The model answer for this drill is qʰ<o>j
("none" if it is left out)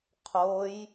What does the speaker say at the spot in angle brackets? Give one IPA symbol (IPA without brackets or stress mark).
o